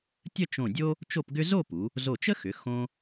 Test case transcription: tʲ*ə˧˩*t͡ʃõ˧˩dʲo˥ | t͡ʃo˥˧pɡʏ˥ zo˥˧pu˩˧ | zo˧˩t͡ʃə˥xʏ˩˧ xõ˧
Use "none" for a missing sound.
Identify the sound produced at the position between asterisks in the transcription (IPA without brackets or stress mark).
ə˥˧